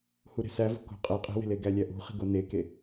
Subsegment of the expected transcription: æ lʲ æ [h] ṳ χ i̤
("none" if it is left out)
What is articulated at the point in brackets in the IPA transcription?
ʔ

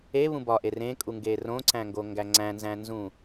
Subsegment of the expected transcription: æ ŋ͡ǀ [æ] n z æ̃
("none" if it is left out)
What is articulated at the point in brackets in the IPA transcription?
æ̃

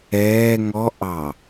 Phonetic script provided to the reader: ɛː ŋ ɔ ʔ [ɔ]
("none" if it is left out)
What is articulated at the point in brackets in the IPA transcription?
ɑ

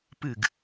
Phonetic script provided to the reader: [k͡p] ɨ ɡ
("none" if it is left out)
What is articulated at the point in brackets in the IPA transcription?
p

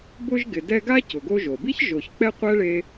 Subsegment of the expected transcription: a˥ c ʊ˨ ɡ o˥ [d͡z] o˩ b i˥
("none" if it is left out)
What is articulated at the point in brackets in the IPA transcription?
ʒ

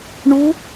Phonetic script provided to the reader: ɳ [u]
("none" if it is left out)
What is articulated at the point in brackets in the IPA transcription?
u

